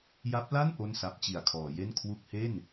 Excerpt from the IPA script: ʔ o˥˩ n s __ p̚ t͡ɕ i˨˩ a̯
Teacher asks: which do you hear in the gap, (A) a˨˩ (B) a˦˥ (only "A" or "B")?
B